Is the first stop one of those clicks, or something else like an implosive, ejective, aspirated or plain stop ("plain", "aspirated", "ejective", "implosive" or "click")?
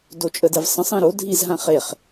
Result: plain